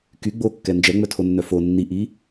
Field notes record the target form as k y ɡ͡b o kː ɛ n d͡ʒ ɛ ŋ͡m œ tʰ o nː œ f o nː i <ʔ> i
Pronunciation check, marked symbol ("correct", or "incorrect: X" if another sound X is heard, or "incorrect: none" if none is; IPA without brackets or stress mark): correct